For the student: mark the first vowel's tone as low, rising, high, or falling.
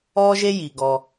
high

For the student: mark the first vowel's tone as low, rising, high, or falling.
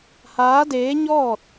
rising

